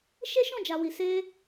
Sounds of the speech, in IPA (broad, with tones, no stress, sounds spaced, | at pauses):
ʃ e˦ ʃ ɔ̃˦˨ d͡ʒ a˨ w i˨ s e˧